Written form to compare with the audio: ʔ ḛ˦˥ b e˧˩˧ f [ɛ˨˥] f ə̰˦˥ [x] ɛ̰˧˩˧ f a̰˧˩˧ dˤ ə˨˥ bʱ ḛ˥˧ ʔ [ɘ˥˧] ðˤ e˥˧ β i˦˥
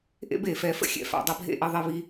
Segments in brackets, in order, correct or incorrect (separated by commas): correct, incorrect, correct